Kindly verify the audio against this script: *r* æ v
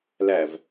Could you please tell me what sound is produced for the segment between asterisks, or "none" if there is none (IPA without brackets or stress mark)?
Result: l